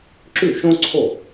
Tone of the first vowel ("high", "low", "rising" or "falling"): falling